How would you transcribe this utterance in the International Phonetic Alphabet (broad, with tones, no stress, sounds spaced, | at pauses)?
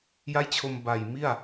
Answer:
j a˥˩ j t͡ɕʰ o˧ m b a˨˩ j m i˥˩ a̯